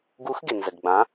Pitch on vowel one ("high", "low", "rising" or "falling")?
rising